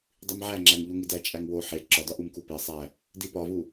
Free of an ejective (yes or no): no